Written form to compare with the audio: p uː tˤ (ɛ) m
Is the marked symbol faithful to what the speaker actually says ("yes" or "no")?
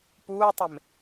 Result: no